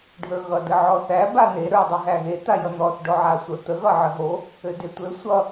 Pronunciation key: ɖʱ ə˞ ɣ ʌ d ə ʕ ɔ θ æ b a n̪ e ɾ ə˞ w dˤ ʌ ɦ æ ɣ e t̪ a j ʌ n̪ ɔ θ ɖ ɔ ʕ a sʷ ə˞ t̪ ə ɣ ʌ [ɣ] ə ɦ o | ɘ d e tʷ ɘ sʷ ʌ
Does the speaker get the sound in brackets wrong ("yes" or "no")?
yes